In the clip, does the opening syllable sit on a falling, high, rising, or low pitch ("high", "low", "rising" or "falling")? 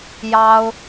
high